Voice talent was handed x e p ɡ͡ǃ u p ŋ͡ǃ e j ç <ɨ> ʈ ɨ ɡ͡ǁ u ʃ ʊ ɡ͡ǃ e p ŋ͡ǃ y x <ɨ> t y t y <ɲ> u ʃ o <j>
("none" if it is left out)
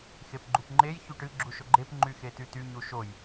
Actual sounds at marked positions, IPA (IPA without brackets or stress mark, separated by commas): y, e, ɲ, j